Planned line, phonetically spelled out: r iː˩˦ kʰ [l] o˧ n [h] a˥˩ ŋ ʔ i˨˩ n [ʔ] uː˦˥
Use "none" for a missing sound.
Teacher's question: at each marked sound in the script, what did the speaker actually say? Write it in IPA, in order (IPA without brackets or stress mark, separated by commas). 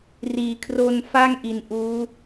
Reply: r, f, ʔ